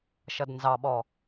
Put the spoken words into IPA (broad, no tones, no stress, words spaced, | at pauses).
ʃʌdnzɑɓɔ